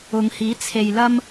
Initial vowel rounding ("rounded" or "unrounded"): rounded